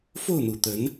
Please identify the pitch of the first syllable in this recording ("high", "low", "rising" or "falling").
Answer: falling